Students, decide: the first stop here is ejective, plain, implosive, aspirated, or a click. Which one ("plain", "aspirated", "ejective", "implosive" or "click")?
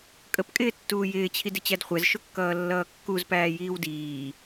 ejective